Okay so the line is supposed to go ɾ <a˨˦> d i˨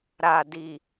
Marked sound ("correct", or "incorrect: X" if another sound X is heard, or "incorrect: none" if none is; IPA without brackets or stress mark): incorrect: a˨